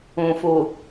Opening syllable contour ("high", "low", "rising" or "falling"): low